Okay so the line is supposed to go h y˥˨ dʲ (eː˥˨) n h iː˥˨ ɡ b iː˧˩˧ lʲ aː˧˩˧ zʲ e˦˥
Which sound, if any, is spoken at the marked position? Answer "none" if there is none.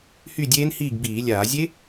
eː˦˥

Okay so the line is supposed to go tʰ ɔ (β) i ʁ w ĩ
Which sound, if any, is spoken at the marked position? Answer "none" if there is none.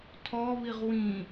β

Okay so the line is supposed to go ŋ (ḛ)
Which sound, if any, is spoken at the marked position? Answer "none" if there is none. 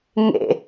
ḛ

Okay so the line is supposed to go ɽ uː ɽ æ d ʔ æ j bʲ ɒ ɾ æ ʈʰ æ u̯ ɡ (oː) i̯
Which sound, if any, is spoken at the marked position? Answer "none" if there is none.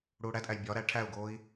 oː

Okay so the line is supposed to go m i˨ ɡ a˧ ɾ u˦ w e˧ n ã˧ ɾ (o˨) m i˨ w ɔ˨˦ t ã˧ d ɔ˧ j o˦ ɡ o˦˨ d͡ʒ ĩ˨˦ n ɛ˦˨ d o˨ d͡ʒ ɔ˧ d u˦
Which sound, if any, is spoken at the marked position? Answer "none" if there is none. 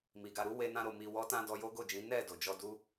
o˨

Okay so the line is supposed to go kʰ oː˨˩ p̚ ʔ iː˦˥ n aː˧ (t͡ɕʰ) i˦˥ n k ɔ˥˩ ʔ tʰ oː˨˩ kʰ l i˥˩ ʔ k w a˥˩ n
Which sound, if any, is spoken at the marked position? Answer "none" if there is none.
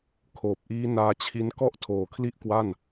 t͡ɕʰ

